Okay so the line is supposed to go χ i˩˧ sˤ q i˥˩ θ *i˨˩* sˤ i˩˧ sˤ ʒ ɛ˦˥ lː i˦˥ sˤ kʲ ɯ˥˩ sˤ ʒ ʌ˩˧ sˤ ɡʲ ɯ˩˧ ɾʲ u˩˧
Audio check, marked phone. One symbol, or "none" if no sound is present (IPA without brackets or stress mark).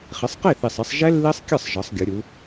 i˨˩